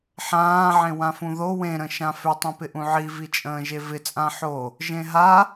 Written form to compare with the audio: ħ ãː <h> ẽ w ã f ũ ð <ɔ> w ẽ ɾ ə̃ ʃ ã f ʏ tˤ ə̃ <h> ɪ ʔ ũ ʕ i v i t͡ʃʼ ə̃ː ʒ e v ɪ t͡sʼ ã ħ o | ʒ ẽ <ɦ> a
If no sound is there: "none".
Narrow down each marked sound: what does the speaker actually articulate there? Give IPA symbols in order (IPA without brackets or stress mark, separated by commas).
ʕ, o, p, ɦ